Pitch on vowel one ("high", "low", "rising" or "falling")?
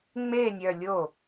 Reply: falling